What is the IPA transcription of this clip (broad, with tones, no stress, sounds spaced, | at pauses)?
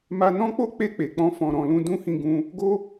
m a˧ n ɔ̃˦ k͡p o˦ k͡p e˦˨ k͡p e˨ k͡p ɔ̃˧ f ɔ̃˨ ɾ ɔ̃˨ l ũ˧ d ũ˦ h ĩ˧ ɡ ũ˧ | ɡ o˦